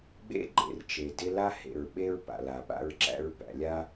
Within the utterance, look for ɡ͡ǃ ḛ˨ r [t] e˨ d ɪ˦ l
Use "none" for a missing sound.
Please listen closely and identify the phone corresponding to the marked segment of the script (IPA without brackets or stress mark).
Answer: t͡ʃ